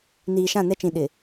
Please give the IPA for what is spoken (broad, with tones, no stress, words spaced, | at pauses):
niː˨ʃã˦˨nɛ˦t͡ʃĩ˨ ɗɪ˨